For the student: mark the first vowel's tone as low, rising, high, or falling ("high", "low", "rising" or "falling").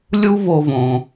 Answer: high